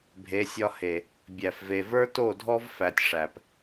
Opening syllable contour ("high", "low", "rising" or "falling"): rising